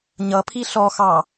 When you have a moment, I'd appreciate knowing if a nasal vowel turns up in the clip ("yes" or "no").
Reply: no